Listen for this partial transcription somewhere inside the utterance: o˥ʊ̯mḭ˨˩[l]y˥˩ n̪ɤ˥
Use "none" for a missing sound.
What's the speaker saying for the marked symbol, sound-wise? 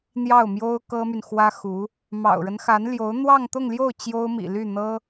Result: l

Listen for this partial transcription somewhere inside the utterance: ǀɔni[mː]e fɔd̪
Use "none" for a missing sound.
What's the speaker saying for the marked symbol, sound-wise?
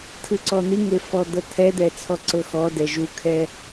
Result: ŋ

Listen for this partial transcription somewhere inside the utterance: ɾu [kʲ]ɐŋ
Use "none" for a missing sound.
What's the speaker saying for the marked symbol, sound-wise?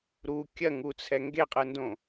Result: kʲ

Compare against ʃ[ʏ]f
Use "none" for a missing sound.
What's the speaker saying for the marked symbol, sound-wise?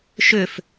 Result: ʏ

